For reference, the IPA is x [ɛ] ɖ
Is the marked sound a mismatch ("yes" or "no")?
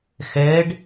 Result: no